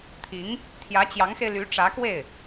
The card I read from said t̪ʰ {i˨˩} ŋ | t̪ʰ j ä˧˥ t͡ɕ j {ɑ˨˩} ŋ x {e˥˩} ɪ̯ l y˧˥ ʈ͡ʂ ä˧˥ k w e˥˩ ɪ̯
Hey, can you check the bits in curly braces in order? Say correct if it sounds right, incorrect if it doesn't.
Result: incorrect, incorrect, incorrect

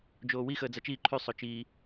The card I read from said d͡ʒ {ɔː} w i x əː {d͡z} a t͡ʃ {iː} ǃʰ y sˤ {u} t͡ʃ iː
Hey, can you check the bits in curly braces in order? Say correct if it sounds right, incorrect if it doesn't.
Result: incorrect, correct, correct, incorrect

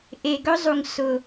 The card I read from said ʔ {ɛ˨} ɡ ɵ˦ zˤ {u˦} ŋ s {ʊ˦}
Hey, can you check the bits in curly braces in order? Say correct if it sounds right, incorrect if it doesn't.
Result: incorrect, incorrect, incorrect

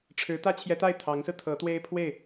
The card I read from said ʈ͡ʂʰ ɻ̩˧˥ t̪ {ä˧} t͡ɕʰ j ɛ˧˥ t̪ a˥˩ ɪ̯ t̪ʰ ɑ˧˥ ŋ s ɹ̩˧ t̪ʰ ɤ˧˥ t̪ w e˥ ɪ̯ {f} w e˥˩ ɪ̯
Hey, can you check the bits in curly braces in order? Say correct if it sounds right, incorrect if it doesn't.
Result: incorrect, incorrect

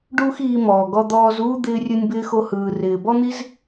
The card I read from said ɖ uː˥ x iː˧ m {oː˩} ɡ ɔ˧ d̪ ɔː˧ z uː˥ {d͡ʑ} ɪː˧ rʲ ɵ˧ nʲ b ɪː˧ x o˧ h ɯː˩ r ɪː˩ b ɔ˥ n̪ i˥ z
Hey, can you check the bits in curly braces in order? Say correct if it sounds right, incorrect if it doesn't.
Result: incorrect, incorrect

